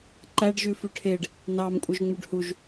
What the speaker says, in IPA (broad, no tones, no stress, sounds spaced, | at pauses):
ǃ æ ɖ ʒ ʉ f ʉ ʈʰ e ɖ | n ɑ m kʷʼ œ ʒ ŋ͡m ʉ ɖ h u ʒ